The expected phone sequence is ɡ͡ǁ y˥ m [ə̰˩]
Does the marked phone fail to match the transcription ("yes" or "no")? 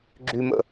yes